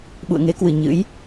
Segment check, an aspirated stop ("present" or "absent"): absent